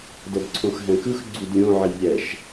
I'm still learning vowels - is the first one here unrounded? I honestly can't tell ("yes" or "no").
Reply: yes